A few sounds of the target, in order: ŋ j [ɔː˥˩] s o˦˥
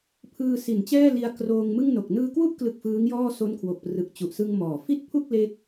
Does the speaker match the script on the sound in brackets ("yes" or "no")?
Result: yes